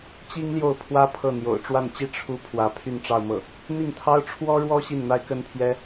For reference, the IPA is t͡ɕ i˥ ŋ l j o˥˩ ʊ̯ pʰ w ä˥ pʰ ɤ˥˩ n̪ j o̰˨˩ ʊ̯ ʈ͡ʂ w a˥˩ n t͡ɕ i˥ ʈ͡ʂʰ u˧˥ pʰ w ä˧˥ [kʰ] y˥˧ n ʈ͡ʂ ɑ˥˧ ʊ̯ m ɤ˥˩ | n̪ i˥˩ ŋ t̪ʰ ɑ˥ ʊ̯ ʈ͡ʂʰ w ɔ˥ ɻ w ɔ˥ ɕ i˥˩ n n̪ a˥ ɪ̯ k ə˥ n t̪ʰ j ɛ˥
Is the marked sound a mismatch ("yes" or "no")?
yes